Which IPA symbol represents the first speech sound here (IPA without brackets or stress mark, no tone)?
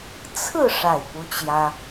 t͡sʰ